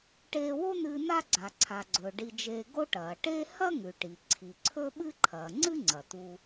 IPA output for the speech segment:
ʈ eː˧ w o˥ n̪ ɨː˧ n̪ a˥ ɡ͡ǀ a˩ ǀʰ a˩ ɡ͡ǀ ɵː˩ ɖ i˧ d͡ʒ eː˧ ɡ o˥ ʈ ɐː˩ ʈ e˥ h ɐ˥ ŋ ʉ˩ ʈ i˩ ǀʰ i˩ ǀʰ ɵ˥ ɓ ɨ˥ ǃʰ ɐː˩ ŋ͡ǀ ɨ˥ ŋ͡ǀ ɐ˩ t̪ uː˧

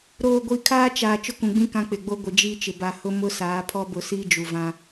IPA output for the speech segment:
ɾ oː˨ ɡʷ i˨ kʰ aː˦ t͡ʃ aː˨ t͡ʃ ʊ˦ k ũ˨ ɡ͡b ĩ˦ k ã˦ k͡p ɪ˨ ɡ͡b o˦ ɡʷ ɪ˨ d͡ʒ i˦ t͡ʃ ɪ˨ b a˨ h ʊ˦ m ʊ˦ s aː˨˦ pʰ ɔ˦ b ʊ˦˨ s iː˦ d͡ʒ u˨ v ã˦

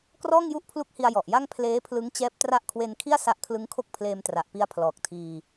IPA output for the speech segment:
k r ɔː˥˩ ŋ j u˥˩ ʔ pʰ l u˦˥ k̚ h i˧ a̯ j ɔ˨˩ ʔ j a˥˩ ŋ pʰ l eː˦˥ pʰ l ɯ˦˥ ŋ t͡ɕ ɛː˦˥ p̚ t r a˦˥ ʔ kʰ w e˧ n kʰ i˥˩ a̯ s a˦˥ ʔ kʰ l ɯ˦˥ ŋ kʰ o˥˩ k̚ pʰ l eː˧ m t r a˨˩ ʔ p i˦˥ a̯ pʰ l ɔː˨˩ k̚ tʰ iː˧

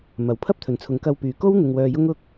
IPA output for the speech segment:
m ɐ˨˥ w pʰ ɐ˥ p̚ t̪ʰ ɵ˨ n t͡sʰ ʊ˨˧ ŋ k ɐ˧ w p yː˨ k o˥ w n̪ ɪ˧ ŋ w œː˧ j ʊ˥ ŋ ʊ˥ k̚

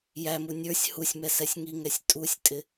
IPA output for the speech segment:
j æ m u nʲ ə˞ sʲ h u sʲ m ɛ s ɛ sʲ ŋ i ŋ ɛ sʲ tʼ u sʲ tʼ ɪ

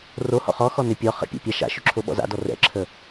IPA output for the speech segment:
r o h ɔ̰ χ ɔ x ɔ n ʏ pʲ ɔ χ ə̰ pʲ a̰ pʲ a ʃ a̰ ʃ ʏ ǁʰ o ɓ ɔ̰ z a̰ d ɔ r ɛ̰ ǁʰ ə

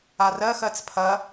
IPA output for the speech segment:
a r ɜ x ɜ t͡s pʰ ɐ

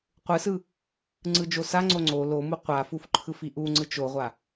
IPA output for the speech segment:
qʷ ɯ s ɯ | ŋ͡ǀ ɯ d͡ʒ o s a ŋ͡ǀ o ŋ͡ǀ o l o m u qʷ a f u f ǃʰ ɯ f i ʔ u ŋ͡ǀ ɯ t͡ʃ o ʁʷ a

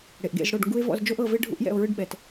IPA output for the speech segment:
ɽ e˨ ʔ ɡ ḛ˦˨ z ɽ o˦˨ ɖ ŋ ɡ u˦ e̯ v ɔ̰˦˨ z d͡ʒ o˦ ʔ ɤ˦˨ v e˦ ɖʱ ṵ˦ ʔ j ɛ̰˦˨ o̯ ɹ ɯ˦ ɖ ɓ ɛ˨ t

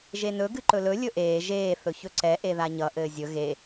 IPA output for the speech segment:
ʒ e n ɵ ɡ ɨ ǃ ɵ l ɵ lʲ ɵ ʔ eː ʒ eː θ ɵ ç ɵ ǀ ɛ ʔ e ð a ɲ ʌ ʔ ɘː zʲ ɵ ɣ e

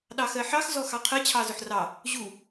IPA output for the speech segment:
ɗ ɑ x ɜ ħ ɑ x z ɔ x ɑ qʰ ɜ t͡ɕʰ ɑ z ʊ ħ r ɑ | ʑ u

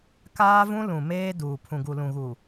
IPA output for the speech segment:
k aː˦ v ũ˦ l ũ˨ m eː˦ d uː˨ pʰ ũ˨ ɡ u˨ l ũ˨ ɣ u˨

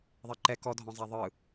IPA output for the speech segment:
ðˤ ɛ ǃ ɛ k ɔ dʱ ɔ̃ zˤ a ðˤ ɯ

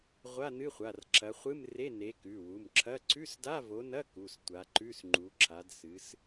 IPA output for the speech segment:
ʁʷ a˧˥˧ n ɨ˧˥˧ χʷ a˩˧˩ r ǁʰ ɐ˨˦ χʷ ɨ˧˥˧ m r e˧˥˧ n e˨˦ k ʉ˩˧˩ w u˩˧˩ m ǁʰ ɐ˧˥˧ ǀʰ ʉ˧˥˧ s d a˧˥˧ v o˨˦ n ɐ˧˥˧ k u˩˧˩ s tʷ a˨˦ ǃ ʉ˧˥˧ s ŋ͡ǃ u˨˦ ǁʰ a˨˦ d s ɨ˨˦ s

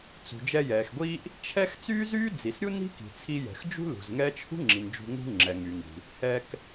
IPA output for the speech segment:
t͡s ṳ˩ d͡ʒ ɛ˧ j ɛː˩ x ɡʷ iː˥ ʔ | t͡ʃʰ ɛ˥ x t͡s yː˥ z yː˥ d͡z i˩ s ɾʲ u˥ n i̤˥ k i̤˩ t͡sʰ i˧ j ɛ̤˩ x d͡ʒ ṳ˥ l ṳ˩ z ŋ ɛː˥ t͡ʃ h ṳ˥ ŋ͡ǁ i˩ n d͡ʒ ṳ˧ ŋ ṳ˥ ŋ͡ǁ ɛ˩ ŋ y˩ ŋ i̤˩ | h ɛ˧ k

